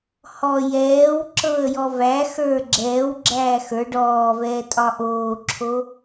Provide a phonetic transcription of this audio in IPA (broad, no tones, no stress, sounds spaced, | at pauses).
h ɔ j ɛː w ǁ ɤ ə̯ j ɔ v æ x ə˞ ɡ͡ǁ ɛː w ɡ͡ǁ æː x ə˞ ɖ ɔː v ɛː tʼ ɒ ʔ oː ǁʰ o